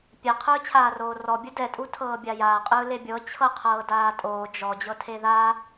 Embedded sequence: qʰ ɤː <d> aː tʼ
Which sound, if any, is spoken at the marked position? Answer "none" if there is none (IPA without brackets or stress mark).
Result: d